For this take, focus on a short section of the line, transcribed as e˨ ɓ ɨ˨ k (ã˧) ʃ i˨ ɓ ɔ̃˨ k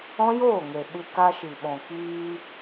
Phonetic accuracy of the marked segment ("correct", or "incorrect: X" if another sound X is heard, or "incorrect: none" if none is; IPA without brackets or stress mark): incorrect: a˧